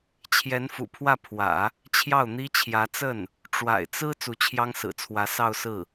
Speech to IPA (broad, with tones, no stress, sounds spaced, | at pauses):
t͡ɕʰ j ɛ˧˥ n f ṵ˨˩ pʰ w ä˥˩ pʰ w ä̰˨˩˦ | t͡ɕʰ j ɑ˥˩ ʊ̯ n̪ i˥ t͡ɕʰ j ä˧˥ t͡s ə˥˩ n | ʈ͡ʂ w a̰˨˩ ɪ̯ t͡s ɹ̩˥ t͡s u˧˥ t͡ɕʰ j ɑ˥ ŋ s ɹ̩˨˩ t͡sʰ w ä˧˥ s ɑ˥˧ ʊ̯ s ɹ̩˥˩